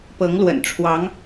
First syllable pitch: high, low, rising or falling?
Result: rising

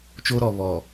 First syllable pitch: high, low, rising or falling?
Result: high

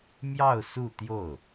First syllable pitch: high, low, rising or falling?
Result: falling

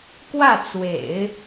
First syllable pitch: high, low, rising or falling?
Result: falling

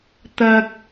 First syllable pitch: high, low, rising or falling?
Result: high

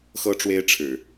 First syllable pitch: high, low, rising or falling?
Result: high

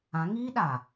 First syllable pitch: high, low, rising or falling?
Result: rising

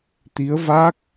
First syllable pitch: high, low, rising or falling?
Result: rising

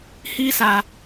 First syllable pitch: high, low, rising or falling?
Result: high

